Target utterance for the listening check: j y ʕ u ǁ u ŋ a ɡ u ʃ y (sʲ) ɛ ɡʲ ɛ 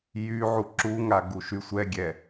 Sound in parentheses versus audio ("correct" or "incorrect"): incorrect